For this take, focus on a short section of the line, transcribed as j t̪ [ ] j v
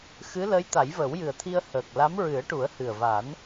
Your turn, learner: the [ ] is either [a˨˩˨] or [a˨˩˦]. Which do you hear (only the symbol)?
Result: a˨˩˦